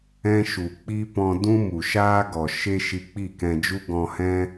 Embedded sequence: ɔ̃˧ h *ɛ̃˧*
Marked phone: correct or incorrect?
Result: incorrect